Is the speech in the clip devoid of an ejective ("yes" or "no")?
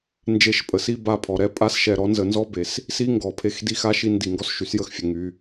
no